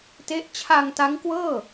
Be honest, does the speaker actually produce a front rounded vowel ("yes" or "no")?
no